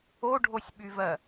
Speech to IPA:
o ɖʱ o sʲ ɓ y v ɜ

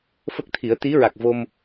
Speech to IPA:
f ə˦˥ k̚ t̪ʰ i˨˩˦ ə̯ t̪ i˧˥ ɹ a˨˩ k̚ v o˧ m

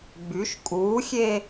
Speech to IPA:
ɡ͡b y ʃ kʼ uː xʲ e

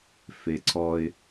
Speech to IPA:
f e ǀʰ ɔ ɪ̯

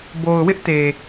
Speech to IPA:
b o˨ ʊ̯ w ɪ˦ ʔ t e˨

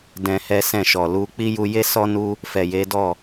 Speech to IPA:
d ɛ̃˧ h ɛ˦ s ɛ̃˦˨ ʃ ɔ˨ l u˧ k͡p i˦ j u˧ j e˦ s ɔ˦ n u˦ | f ɛ˨ j e˨˦ d ɔ˦˨

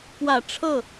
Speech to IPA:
k w ä˨˩ ʈ͡ʂʰ ɤ˥˩

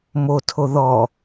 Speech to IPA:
m o tʰ o ð ɔ

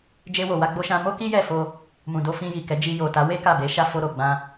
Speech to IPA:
d͡ʒ e˧ w o˨ w a˧ ɡ͡b o˧ ʃ ã˧ m o˦ k i˦ j ɛ˦˨ f o˧ | m ũ˨ d o˧ f ĩ˧ j i˨ k ɛ˨˦ d͡ʒ i˧ j o˨ t a˨˦ w e˦ k a˦˨ b e˨˦ ʃ a˦ f o˧ ɾ o˨ ɡ͡b ã˧

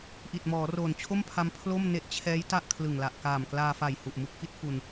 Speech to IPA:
ʔ i˨˩ t̚ m ɔː˩˦ r oː˨˩ n t͡ɕʰ o˥˩ m pʰ a˧ m pʰ l o˥˩ m n e˦˥ ʔ t͡ɕʰ ɛː˦˥ j t a˥˩ ʔ kʰ l ɯ˨˩ ŋ l a˨˩ ʔ k aː˨˩ m k l aː˧ f a˨˩ j h u˨˩ ʔ m u˦˥ k̚ f i˦˥ t̚ f u˧ n

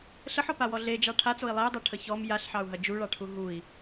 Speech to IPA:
ɬ ə ħ ɔ p a w ɔ ɮ e d͡ʒ ɑ ʈʰ a t͡s o i̯ lˠ e u̯ dˤ a ʈʰ ə ç ɔ m j a ɬ ħ ɑ u̯ ɦ ɐ d͡ʒ u ɭ ɑ ʈʰ u ɦ u i̯

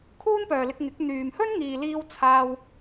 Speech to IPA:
kʰ uː˥ n p œː˨ l ɪ˧ k̚ ŋ ɪ˨˥ k̚ n̪ yː˨ m h ɵ˥ n ŋ iː˨ l iː˧ w t͡sʰ aː˧ w

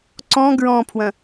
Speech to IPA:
ǀ ɔ̃ ɡ ɹ ɔ̃ pʰ w ɐ̃

